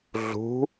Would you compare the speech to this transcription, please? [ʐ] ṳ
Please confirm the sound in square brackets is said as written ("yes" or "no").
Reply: no